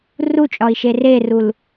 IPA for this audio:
r u t͡ʃʼ ɒ i̯ ʃ e r e r u l

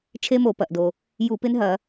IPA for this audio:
t͡ʃʰ e˦˥ m o˧˩˧ p ɐ˩ ʔ d o˩ | j u˧˩˧ p ɪ˦˥ n ɦ ɐ˧˩˧

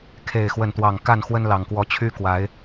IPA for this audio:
kʰ e˥˨ ɪ̯ x w ə˥˨ n t̪ w ɑ˥˨ ŋ k a˥˨ n x w ə˦ n l ɑ˨˩ ŋ k w ɔ˨˦ t͡ɕʰ y˦ k w a˨˦ ɪ̯

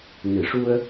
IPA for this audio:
n ɨ˨˩˨ ʂ u˧ ə̯

